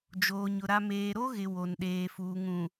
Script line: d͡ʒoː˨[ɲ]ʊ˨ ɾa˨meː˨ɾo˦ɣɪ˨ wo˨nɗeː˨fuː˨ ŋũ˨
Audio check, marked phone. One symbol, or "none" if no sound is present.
ɲ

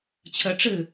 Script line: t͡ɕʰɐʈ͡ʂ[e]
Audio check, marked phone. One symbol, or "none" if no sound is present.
ɘ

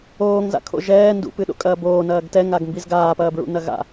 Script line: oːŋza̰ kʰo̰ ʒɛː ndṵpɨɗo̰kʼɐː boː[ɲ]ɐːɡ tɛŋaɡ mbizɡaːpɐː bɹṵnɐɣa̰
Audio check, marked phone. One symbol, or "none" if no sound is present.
n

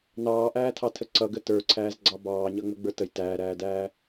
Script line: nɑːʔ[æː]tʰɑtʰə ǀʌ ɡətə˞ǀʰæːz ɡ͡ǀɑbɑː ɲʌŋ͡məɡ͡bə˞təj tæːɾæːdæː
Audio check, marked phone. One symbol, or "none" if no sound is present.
æː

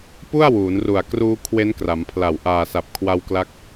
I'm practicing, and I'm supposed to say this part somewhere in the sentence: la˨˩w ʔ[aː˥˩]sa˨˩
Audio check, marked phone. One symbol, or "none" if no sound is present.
aː˨˩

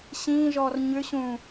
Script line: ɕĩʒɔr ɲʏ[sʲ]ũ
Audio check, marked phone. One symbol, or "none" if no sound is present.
ɕ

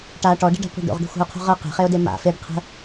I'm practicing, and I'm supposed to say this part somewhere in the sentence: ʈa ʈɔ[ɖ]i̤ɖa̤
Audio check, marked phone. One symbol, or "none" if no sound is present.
ɖ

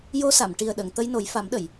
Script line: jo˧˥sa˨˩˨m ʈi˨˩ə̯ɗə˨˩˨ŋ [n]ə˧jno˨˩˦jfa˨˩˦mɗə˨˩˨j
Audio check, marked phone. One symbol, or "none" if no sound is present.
t̪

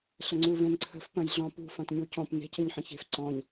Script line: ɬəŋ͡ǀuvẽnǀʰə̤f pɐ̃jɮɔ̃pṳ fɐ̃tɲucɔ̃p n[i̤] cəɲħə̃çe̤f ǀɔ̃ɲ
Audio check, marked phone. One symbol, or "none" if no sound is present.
e̤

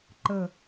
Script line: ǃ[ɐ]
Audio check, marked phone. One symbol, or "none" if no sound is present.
ə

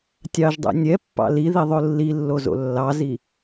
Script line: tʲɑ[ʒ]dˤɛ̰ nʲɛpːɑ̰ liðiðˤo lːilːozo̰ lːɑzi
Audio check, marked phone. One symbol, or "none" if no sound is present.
ʒ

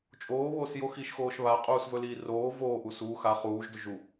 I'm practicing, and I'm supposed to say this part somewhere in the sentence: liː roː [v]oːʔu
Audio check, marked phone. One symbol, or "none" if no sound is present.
v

